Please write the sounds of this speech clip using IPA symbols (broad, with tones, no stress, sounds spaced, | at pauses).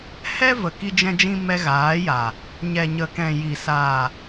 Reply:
h ɛ˦ v ə˨ k i˦ d͡ʒ ɛ̃˦ d͡ʒ ĩ˦ m ɛ˧ ɣ aː˨˦ j a˨ | ɲ ɛ˨ ɲ ə˨ k ɛ̃˨ j i˨ s a˨